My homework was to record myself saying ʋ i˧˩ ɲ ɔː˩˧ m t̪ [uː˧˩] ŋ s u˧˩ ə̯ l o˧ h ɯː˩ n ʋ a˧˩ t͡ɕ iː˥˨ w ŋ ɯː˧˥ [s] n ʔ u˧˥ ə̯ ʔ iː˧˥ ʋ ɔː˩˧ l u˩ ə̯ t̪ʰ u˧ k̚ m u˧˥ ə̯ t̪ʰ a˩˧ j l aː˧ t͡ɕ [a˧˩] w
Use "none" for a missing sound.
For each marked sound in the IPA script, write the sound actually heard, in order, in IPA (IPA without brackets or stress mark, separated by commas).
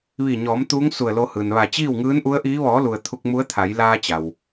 uː˧˥, none, a˩